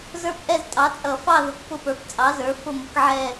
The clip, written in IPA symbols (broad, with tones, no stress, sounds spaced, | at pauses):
z ə˞˦˨ p ʔ ɛ˦˨ z tʼ ɑ˩˥ t͡sʼ ʌ˧˩˧ f ɑ˦˨ ð ʊ˩˥ k p ʊ˦˨ p ə˞˩˥ p t͡sʼ ɑ˩˥ z ə˞˩˥ f ʊ˦˨ m ʊ˩˥ k ʕ ɛ˦˨